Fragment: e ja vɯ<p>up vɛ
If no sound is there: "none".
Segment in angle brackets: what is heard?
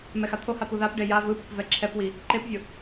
p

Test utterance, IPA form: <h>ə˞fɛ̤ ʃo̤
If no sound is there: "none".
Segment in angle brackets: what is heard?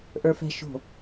ʔ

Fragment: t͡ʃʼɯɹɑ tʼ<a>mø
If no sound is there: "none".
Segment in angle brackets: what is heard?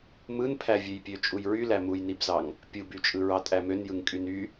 æ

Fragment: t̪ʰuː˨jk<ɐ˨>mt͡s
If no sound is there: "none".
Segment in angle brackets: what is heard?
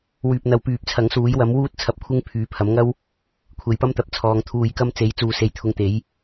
ɐ˧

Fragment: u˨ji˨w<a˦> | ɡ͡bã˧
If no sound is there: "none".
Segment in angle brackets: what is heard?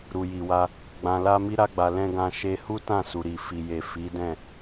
a˧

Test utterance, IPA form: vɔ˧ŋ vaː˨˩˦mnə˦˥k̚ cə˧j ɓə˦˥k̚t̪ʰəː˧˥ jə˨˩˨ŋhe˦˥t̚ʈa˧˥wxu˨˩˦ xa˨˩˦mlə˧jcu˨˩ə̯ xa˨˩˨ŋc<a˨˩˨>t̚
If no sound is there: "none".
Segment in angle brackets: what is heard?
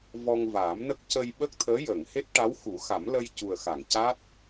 a˦˥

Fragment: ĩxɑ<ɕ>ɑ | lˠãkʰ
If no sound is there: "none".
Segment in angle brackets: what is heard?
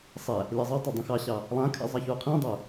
ɕ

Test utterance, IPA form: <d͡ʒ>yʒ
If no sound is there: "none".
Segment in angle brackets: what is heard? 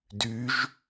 d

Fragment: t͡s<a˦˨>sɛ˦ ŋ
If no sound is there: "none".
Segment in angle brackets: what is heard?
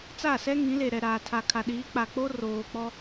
a˦˨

